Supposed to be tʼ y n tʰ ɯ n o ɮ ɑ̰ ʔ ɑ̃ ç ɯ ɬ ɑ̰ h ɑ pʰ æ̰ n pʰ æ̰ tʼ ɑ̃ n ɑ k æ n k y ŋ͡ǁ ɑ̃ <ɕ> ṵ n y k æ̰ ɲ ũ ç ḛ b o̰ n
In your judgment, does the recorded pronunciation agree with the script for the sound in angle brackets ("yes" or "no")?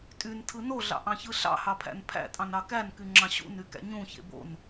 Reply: yes